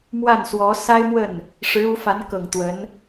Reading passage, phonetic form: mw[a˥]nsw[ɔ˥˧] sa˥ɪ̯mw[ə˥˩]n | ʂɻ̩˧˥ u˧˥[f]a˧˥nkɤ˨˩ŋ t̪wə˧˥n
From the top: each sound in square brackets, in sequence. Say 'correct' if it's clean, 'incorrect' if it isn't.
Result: incorrect, incorrect, correct, correct

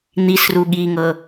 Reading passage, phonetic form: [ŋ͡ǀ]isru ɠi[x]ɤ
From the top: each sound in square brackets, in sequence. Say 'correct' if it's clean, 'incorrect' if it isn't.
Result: incorrect, incorrect

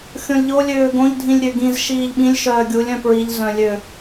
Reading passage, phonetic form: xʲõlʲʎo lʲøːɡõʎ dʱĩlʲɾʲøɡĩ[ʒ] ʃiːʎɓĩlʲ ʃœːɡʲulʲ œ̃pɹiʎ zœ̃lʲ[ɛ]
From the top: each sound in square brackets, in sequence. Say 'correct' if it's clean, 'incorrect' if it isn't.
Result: incorrect, incorrect

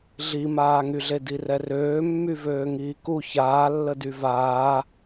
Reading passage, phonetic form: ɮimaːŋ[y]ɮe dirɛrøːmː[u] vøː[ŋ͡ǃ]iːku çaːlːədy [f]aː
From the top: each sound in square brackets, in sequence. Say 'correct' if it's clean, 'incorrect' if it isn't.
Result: correct, incorrect, incorrect, incorrect

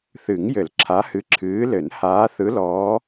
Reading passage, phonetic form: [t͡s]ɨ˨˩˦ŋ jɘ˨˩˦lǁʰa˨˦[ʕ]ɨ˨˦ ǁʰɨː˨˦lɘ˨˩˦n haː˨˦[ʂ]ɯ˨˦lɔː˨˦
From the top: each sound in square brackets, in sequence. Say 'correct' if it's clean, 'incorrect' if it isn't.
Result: incorrect, incorrect, incorrect

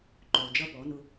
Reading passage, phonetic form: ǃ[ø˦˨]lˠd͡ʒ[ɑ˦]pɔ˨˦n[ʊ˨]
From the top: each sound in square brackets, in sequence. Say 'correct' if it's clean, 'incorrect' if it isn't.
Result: incorrect, incorrect, incorrect

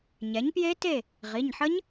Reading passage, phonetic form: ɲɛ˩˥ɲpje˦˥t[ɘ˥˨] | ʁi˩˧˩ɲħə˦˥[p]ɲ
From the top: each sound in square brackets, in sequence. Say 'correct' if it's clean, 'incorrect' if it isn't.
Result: incorrect, incorrect

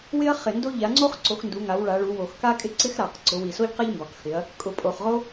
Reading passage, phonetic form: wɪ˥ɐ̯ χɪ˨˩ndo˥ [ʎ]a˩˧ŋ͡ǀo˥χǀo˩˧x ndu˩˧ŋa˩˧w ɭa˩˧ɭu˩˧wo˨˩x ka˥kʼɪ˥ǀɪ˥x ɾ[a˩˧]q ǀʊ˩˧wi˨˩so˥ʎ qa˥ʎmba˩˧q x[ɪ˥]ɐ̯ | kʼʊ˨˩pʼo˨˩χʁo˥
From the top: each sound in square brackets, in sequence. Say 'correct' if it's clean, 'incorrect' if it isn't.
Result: correct, incorrect, incorrect

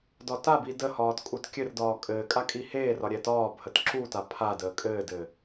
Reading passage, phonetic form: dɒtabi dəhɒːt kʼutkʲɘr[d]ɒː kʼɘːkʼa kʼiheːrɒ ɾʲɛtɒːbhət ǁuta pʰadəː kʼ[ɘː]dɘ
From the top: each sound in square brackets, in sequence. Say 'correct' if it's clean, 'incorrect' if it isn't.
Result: correct, correct

